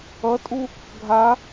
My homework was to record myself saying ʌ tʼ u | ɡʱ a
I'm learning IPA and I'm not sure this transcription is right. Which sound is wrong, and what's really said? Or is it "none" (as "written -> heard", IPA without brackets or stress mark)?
none